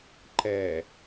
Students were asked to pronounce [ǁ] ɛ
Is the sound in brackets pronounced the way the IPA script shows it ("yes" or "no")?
no